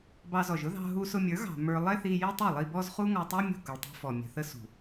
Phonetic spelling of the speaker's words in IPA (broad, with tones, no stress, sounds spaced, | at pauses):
b ɑ˧ z ɔ˨ ʒ ʊ˦ ð ɑ̤˧ ɦ u˧ s ʊ˧ mʲ ə˞˨˦ ɣ ɑ̤˨ m ə˞˧ lˠ ɛ˦ θ i˧ j i˦ tˤ u˦˨ lˠ i˧ b ɔ˦ z χ u˦ ŋ ɔ˧ tˤ u˦ mʲ ṳ˦˨ k ʊ˨ ɭ tˤ ṳ˧ f ɔ˨ mʲ ə̤˨ θ ə˦ s ṳ˨